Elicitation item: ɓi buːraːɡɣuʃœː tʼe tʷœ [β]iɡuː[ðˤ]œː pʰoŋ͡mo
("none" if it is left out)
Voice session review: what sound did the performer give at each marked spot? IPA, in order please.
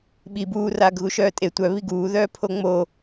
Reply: β, ð

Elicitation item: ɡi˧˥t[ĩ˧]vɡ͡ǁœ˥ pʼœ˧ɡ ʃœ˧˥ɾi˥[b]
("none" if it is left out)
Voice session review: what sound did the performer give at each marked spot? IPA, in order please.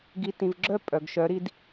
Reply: ĩ˧, d

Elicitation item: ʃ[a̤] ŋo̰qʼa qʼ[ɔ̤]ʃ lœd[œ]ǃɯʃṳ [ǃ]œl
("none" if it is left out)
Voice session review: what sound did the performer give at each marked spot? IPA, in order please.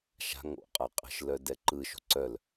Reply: a̤, ə̤, ɛ, ǀ

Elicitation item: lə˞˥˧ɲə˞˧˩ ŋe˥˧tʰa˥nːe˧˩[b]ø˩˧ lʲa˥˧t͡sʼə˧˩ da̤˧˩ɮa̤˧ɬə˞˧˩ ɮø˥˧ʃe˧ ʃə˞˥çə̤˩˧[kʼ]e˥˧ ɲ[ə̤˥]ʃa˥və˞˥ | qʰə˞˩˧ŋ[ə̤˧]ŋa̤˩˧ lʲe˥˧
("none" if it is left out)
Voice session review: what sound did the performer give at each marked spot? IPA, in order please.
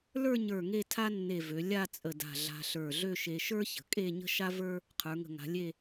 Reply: v, kʼ, ə̤˥, ə̤˧˩

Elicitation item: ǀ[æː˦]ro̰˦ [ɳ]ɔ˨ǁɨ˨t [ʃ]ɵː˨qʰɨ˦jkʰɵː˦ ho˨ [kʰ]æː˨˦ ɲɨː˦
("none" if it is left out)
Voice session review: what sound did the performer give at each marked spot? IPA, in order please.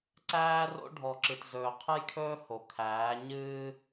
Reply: æː˦, ɖʱ, z, kʰ

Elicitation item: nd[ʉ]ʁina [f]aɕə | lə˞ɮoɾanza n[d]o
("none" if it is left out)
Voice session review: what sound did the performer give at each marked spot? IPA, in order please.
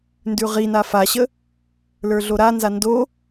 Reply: ʉ, f, d

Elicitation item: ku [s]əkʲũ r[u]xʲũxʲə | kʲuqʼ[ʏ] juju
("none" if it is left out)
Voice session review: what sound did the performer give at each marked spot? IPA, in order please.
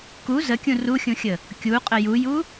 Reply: z, u, ə

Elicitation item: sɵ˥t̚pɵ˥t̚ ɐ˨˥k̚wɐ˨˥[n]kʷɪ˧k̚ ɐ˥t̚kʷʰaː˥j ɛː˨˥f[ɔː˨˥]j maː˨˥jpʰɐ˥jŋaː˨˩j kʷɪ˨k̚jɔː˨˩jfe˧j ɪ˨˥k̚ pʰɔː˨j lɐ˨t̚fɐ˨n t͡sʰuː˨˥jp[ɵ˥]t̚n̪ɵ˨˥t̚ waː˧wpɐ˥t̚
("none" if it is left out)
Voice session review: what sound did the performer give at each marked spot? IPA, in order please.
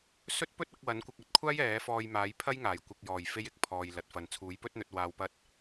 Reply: n, ɔː˧, ɵ˥

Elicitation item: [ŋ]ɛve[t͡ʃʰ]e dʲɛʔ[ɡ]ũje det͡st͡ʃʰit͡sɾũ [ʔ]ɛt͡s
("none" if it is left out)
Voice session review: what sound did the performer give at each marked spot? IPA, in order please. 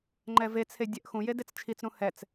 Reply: ŋ͡ǃ, t͡sʰ, x, h

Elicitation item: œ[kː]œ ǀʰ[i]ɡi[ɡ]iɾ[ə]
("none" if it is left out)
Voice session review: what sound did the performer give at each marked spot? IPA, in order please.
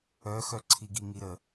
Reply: x, i, ŋ, ə

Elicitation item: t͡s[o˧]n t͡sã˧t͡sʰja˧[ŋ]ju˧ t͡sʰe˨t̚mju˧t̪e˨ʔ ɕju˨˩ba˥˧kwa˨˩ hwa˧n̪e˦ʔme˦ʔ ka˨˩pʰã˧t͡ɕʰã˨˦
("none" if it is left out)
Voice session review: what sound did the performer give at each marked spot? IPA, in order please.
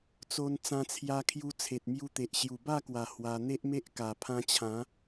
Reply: o˧, kʰ

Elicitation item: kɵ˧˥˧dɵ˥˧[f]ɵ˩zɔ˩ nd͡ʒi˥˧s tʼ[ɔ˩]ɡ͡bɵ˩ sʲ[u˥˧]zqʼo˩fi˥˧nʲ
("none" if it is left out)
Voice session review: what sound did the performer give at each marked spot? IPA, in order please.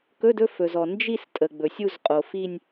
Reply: f, ə˩, u˥˧

